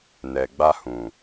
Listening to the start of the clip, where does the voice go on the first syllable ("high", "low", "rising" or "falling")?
low